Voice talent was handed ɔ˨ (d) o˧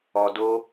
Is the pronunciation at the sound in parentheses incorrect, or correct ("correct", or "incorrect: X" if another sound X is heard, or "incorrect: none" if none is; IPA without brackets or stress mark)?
correct